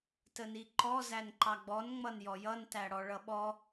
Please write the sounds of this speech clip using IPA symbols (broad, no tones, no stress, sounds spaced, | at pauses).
t ə n i ǃ ɔ z æ n ǃ ɑ ɡ͡b ɔ n ŋ͡m ʌ n j ɔ j ʌ n t æ ɽ ɔ ɭ ʌ ɓ ɔ